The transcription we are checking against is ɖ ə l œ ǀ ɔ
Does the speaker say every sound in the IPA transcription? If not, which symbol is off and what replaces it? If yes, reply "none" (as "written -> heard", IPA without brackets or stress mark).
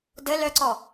ɖ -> d